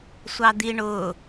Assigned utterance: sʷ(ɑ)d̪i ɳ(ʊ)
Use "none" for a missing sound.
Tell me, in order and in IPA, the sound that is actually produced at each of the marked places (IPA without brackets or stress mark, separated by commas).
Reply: ɑ, ʊ